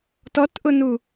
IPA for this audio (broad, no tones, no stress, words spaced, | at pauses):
tɔtʔʊnu